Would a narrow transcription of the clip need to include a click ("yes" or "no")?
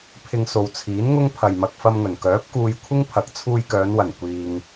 no